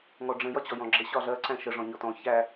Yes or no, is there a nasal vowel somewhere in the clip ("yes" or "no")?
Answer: yes